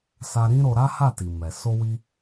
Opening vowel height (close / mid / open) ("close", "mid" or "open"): open